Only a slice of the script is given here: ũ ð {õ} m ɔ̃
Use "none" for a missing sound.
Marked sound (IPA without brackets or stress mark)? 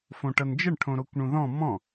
ɔ̃